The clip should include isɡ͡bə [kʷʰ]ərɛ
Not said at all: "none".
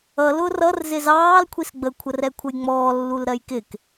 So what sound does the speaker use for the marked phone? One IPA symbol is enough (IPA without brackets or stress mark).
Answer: kʷʰ